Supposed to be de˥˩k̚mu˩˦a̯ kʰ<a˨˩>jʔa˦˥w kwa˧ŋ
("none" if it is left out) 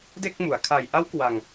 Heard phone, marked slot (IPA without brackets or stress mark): a˨˩